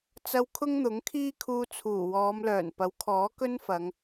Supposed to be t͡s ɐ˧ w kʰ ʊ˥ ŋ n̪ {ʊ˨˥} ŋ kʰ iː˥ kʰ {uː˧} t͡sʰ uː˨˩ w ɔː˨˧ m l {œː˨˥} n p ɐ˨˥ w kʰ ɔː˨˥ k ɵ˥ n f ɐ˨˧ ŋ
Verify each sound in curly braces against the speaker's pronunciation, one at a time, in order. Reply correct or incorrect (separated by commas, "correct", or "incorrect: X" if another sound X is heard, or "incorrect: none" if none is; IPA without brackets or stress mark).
correct, correct, incorrect: œː˨˩